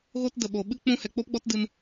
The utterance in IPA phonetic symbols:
ɣ o˦ t d ə˨ ɓ o˨ ɓ ɨ˦ k͡p ũ˧ h ɛ˨ k͡p o˦ p ɡ͡b ɔ˦ t d ɨ˧ n

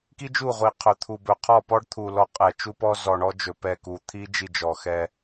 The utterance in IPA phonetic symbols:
k i˦ d͡ʒ u˦˨ ʁʷ i˨ qʰ ɵ˨ t̪ʰ u˨ b ɵ˨ qʰ ɔ˦˨ p ɔ˦ ɖ t̪ʰ u˨ l ɔ˦ qʼ ɛ˨ t͡ʃ u˦ p ɔ˦ z ɔ˨ ɳ ɔ˦ d͡ʒ ɵ˨ p ɛ˦˨ k u˨ t̪ʰ i˦ d͡ʒ i˦˨ d͡ʒ ɔ˨ x ɛ˦

